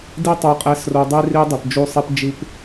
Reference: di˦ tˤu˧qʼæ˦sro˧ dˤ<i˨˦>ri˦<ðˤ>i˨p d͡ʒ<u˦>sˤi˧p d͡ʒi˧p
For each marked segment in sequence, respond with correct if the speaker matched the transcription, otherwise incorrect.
incorrect, incorrect, incorrect

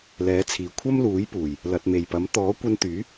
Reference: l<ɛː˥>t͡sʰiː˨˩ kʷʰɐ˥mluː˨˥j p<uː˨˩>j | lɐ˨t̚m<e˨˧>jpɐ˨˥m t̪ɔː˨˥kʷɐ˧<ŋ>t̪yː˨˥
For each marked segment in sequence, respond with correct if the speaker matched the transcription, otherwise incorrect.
incorrect, correct, incorrect, incorrect

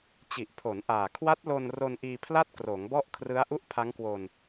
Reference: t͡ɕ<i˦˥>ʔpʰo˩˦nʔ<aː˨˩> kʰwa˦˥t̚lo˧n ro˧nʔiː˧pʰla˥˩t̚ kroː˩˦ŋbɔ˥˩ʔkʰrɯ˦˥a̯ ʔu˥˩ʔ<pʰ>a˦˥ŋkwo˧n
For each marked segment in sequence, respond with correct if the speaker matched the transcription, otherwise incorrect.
incorrect, correct, correct

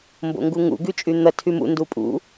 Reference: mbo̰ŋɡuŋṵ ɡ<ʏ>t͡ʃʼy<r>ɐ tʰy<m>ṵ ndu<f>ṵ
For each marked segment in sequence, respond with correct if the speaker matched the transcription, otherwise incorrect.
incorrect, incorrect, correct, incorrect

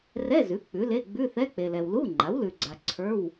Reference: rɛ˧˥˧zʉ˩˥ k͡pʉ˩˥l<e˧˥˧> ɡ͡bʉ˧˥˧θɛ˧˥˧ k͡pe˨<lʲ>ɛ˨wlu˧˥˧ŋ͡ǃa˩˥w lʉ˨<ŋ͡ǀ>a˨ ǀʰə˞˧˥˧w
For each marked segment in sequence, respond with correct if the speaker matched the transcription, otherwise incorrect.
correct, incorrect, incorrect

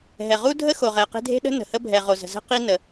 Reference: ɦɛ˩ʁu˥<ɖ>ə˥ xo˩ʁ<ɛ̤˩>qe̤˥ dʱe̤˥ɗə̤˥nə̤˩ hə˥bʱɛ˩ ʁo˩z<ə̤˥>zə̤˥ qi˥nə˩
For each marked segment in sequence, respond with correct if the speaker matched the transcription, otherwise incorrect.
incorrect, incorrect, incorrect

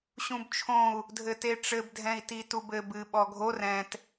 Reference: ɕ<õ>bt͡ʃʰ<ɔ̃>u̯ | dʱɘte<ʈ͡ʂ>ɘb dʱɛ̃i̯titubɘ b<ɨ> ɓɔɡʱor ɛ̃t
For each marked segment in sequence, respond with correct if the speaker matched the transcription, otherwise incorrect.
incorrect, incorrect, correct, correct

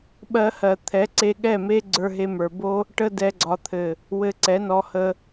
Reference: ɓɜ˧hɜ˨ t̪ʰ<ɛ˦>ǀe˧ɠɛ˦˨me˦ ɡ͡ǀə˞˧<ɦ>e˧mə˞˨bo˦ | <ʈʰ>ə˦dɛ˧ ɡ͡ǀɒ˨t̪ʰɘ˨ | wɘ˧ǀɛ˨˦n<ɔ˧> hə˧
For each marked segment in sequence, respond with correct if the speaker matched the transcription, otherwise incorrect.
incorrect, correct, incorrect, correct

